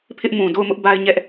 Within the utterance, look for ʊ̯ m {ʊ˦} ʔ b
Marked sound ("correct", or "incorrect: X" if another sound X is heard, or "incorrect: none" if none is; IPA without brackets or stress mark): correct